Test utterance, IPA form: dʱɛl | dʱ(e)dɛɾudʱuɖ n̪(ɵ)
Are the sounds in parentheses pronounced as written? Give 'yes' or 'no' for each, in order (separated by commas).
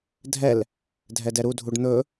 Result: no, yes